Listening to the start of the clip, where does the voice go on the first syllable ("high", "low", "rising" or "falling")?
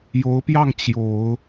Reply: rising